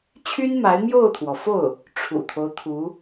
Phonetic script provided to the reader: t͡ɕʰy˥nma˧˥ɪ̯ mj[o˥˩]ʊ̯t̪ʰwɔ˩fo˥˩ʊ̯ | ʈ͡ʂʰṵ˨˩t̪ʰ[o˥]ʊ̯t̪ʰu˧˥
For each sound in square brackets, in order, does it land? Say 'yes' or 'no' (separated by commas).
yes, no